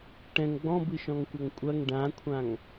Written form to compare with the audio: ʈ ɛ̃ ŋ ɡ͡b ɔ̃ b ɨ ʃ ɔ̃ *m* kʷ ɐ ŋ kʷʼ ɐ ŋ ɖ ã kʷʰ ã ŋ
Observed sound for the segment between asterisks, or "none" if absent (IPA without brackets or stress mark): ŋ